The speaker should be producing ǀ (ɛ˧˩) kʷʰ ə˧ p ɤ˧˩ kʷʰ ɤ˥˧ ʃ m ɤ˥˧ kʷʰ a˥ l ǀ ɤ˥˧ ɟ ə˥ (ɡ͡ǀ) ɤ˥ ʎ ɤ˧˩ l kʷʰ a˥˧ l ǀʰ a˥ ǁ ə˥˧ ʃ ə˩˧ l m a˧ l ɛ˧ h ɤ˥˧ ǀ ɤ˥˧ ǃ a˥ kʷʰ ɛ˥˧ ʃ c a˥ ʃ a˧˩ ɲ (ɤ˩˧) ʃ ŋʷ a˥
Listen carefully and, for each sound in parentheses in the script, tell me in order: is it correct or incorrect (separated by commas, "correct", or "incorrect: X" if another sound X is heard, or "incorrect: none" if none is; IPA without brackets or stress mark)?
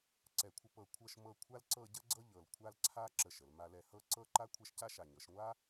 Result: correct, correct, correct